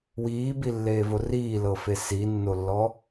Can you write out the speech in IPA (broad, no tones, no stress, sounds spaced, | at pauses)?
w iː b i lː eː v o r iː l ɤ f e s i nː o lː ɔ